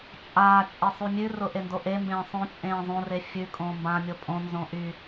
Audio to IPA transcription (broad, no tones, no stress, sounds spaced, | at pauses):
t͡ʃʼ aː t͡ʃʼ e sˤ ʉ mʲ ʉ r ʊ ʔ e n d o ʔ e m b ẽː sˤ õ t͡ʃʼ ẽː zˤ õ r e fʲ ʉ kʼ õː m b ã mʲ o pʼ õ n z õ ʔ y